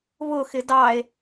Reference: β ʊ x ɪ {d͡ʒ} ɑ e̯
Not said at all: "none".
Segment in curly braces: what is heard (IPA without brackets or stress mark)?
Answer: d